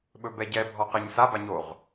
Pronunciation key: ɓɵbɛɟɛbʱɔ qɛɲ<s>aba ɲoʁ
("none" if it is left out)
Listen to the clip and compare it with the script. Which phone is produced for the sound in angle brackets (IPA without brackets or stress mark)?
s